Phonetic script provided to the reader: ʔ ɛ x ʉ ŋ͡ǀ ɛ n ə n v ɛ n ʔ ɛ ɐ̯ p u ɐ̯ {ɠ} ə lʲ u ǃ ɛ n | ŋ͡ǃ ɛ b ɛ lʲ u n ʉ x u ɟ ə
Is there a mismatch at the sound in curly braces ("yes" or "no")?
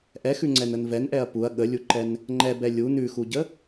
no